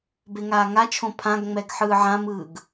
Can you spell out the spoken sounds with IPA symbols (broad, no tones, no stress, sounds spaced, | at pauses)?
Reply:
b e ŋ aː ŋ a t͡ʃʰ õ pʰ ã ɡ ŋ͡m ɛ ɡ ħ ɯː ʕ ã m ɯː ɡ